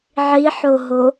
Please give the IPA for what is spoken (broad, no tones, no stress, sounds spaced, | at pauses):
ʕ i ħ o ɦ o